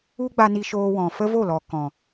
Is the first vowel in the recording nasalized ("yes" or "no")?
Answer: no